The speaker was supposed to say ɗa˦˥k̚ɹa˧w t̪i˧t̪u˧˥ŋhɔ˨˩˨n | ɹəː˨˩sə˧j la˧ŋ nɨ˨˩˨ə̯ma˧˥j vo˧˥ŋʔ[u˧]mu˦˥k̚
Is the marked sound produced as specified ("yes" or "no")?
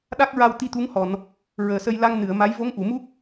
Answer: no